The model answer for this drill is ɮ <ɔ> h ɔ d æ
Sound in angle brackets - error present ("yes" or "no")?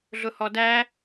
yes